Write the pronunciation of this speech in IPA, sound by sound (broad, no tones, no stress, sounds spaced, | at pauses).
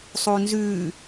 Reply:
sˤ uː n z ʉː